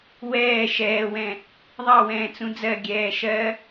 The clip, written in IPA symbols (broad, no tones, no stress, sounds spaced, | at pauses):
w ɛː ʃ ɛː w ɛ̃ | ðˤ ɑ w ɛ̃ː t͡s ũ d͡z ɜ ɡʲ ɛː ʃ ɜ